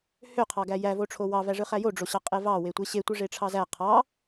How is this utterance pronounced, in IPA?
h ø qʰ ɑ ɡ æ j æ v o ʈ͡ʂʰ o w ɑ v æ ʐ ɯ χ æ j o ɖ͡ʐ o ɕ ɑ qʼ e v ɑ w e tʷ e ɕ e tʷ ɯ ʐ e ʈ͡ʂʰ ɑ z æ qʰ ɑ

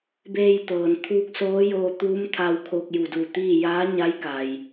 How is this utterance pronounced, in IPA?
b eː˧ j t̪ ɤː˩ n t̪ʰ uː˧ k̚ s oː˧˥ j oː˧ t̪ uː˧˥ m t̪ʰ a˧ w kʰ oː˧ k̚ j u˧˩ d uː˧˩ t̪ iː˥˨ j aː˧˥ ɲ a˧˥ j k a˩ j

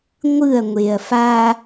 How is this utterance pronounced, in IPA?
ŋʷ ɯ ɐ̯ ŋʷ e ɐ̯ f a

